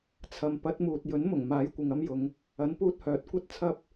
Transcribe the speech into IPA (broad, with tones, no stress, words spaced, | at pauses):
t͡sʰɐ˨mpɐ˨˥t̚muː˨t̚ jɵ˨˥nmʊ˨˩ŋmaː˨˥j kʷɪ˨ŋɐ˥mjʊ˨˧ŋ | ɐ˨˥npuː˧t̚hœː˨˥t̚ kʷɐ˥t̚t͡sʰɐ˥p̚